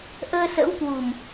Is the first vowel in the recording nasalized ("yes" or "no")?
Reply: no